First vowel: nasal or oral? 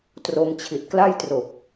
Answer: oral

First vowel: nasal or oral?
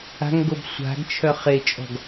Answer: oral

